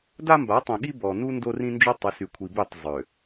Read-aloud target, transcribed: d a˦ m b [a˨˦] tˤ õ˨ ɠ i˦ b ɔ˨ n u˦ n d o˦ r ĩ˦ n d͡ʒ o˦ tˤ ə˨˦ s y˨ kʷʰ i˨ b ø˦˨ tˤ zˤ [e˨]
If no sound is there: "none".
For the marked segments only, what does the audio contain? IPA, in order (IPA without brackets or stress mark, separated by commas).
a˨˦, ø˨